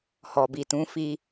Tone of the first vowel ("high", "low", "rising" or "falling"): low